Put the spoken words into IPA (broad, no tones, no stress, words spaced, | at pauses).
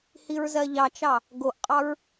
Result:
hiɹzɜʎɑt͡ʃɑ | ɡoʔqʼɑɹ